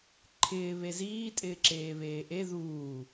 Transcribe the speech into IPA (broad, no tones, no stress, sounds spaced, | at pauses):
ǃʰ ɪː β e z iː tʼ ɪː ǁ eː β eː ʔ e ð uː